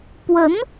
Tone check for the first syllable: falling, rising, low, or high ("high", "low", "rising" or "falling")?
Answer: rising